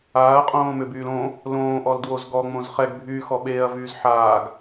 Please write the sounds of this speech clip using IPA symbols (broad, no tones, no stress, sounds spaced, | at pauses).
aː ɐ̯ qʼ õː m ʏ b yː l õ | l õː ʔ ɔ l d w o z ɡ ɔ ŋ͡m õ z χ ɛ ɡ bʱ yː x ɔ ɓ eː ɐ̯ v yː z ħ aː ɡ